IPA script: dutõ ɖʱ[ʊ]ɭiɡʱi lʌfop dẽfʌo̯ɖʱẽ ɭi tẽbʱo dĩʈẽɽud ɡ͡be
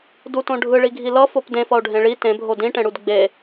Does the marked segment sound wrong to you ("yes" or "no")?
yes